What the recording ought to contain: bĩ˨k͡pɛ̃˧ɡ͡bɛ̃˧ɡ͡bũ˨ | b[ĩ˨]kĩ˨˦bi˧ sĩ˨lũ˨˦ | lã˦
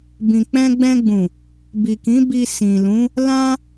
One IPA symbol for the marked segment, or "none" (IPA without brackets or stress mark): i˨